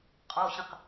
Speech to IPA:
qʼ ɔ ɕ ə̃ q

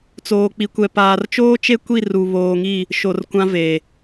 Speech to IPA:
t͡s oː˨ k͡p i˨ kʷ ɛ˨ p aː˨ r t͡ʃ oː˦ t͡ʃ e˦ kʷ i˦˨ r u˨ β oː˨ ŋ i˦˨ | ʃ o˨ r kʷ ã˦ v eː˨

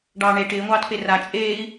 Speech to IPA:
ɖ ɑː ɳ e ʈ ɪː ŋʷ ɑː t p e r a t͡ʃʼ eː i̯

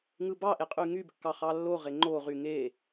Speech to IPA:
ŋ ɯ b ɑ ʔ e qʼ y ŋ y b kː ɑ χ ɑ lː o ʁ e ŋ͡ǃ o ʁ y ŋ e

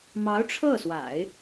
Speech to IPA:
m ɑ˧˥ ʊ̯ ʈ͡ʂʰ ɤ˥˩ s w a̰˨˩˦ ɪ̯

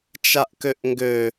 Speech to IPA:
t͡ʃ a ʔ k ø ʔ ŋ ɡ ø

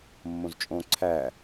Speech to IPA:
mː õ z t͡ʃʼ õ ǀʰ æ

